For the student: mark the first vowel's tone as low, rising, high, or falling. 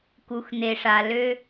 low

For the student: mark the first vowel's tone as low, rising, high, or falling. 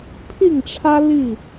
falling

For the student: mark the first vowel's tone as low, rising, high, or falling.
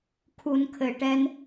low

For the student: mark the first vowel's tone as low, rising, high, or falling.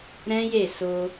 high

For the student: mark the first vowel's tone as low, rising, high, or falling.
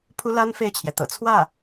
high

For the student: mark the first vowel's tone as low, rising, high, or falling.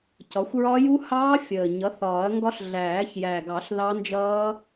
rising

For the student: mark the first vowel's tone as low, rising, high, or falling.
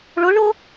rising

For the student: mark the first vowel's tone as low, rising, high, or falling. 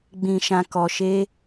low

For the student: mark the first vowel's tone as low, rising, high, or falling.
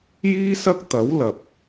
high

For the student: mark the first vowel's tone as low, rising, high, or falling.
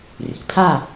rising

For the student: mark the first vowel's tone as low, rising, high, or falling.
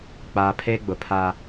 low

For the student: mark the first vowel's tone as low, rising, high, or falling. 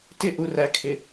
high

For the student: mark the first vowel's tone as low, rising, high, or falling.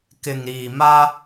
low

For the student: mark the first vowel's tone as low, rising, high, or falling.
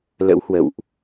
rising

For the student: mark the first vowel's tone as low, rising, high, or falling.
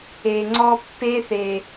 low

